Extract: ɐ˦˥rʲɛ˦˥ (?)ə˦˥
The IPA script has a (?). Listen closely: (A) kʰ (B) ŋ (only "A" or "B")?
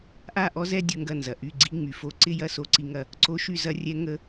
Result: B